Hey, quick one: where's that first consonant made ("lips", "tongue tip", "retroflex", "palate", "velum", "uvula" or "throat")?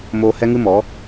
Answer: lips